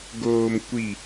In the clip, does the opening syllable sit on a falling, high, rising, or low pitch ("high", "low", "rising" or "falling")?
low